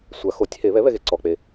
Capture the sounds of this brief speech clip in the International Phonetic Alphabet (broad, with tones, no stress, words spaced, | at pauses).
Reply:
sʷa˨˩˦ xo˩˥tʲ he˨˩˦ βɛ˩˥βɛ˨ɣe˨ ǀɔ˨k͡pe˨